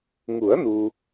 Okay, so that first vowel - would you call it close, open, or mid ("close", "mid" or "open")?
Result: close